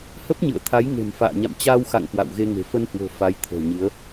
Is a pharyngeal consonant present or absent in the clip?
absent